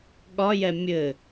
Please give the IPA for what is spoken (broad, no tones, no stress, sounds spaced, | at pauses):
ɠ ɒ j ɛ mʲ ɘ